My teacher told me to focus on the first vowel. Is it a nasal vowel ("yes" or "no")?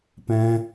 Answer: yes